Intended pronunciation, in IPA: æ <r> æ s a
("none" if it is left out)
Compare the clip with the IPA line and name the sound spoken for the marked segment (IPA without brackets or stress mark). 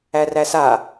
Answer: r